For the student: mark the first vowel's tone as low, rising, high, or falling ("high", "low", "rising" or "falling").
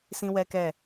high